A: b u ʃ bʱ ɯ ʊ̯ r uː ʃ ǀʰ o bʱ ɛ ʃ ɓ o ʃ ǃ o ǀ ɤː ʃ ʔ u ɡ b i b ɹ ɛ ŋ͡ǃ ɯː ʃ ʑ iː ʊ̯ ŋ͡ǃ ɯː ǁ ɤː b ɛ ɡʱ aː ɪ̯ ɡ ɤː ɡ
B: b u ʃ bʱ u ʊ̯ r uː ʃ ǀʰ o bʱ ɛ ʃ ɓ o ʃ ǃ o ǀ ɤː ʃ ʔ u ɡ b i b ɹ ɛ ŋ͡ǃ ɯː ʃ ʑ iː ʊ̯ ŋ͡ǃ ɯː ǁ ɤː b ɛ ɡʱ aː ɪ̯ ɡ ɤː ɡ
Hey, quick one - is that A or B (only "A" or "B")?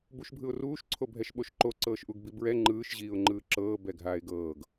A